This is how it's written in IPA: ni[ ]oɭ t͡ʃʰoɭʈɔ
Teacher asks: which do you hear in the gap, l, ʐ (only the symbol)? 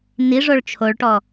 ʐ